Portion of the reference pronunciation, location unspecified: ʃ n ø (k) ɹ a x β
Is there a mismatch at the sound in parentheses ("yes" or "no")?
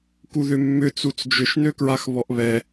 no